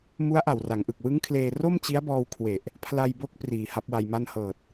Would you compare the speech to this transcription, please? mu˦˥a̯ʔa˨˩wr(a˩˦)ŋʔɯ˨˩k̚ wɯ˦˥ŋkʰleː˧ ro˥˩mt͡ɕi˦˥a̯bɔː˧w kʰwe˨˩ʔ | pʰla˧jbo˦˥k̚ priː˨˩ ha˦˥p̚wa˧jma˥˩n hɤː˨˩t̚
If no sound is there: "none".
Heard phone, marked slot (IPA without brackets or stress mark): a˩˦